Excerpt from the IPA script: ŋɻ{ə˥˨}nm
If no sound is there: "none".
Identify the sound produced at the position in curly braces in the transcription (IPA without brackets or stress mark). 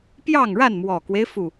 a˥˨